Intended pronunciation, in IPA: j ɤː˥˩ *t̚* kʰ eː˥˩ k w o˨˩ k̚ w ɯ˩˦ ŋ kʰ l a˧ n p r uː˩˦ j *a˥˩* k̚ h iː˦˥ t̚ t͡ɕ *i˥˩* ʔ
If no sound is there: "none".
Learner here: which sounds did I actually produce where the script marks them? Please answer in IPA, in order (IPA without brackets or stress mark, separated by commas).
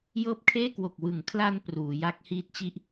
p̚, a˦˥, i˦˥